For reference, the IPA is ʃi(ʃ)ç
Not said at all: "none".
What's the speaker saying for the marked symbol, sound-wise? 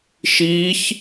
none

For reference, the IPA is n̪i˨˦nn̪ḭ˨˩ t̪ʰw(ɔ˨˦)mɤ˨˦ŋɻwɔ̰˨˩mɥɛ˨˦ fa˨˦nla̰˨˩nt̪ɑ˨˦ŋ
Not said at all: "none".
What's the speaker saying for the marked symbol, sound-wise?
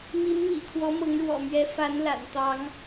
ɔ˨˦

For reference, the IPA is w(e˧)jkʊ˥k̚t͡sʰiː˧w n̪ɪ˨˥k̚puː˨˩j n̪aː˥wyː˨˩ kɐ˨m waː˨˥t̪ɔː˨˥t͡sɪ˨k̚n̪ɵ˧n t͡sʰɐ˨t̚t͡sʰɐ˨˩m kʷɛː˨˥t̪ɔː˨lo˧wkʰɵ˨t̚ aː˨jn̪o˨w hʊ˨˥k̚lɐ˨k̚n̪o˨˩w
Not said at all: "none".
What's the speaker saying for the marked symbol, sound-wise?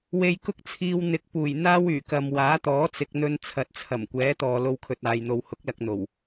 e˧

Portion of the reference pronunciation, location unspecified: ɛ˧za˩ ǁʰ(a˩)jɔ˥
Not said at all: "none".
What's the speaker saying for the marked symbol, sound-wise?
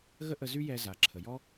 ə˩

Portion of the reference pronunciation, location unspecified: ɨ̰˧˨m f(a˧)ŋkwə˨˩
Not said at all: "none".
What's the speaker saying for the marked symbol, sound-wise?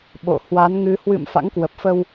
a̰˧˥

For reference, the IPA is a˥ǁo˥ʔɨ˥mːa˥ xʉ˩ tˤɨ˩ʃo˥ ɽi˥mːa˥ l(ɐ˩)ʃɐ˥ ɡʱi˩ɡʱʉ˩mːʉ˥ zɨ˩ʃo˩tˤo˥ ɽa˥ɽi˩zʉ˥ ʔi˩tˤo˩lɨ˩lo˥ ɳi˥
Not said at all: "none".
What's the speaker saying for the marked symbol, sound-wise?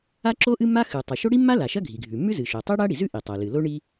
a˩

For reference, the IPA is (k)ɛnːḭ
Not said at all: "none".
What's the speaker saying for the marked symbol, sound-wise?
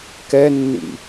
k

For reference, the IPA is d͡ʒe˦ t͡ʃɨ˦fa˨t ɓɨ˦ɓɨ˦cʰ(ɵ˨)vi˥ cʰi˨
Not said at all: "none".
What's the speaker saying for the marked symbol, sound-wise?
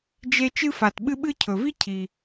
ɵ˨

